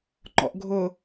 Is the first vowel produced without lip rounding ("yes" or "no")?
no